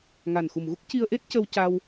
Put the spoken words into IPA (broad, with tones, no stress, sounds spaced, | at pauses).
ŋ a˨˩ n x u˨˩ m ɣ u˦˥ k̚ c i˧ ə̯ ʔ e˦˥ t̚ c ə˧ w c a˧ w